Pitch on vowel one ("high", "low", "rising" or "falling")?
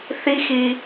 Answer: high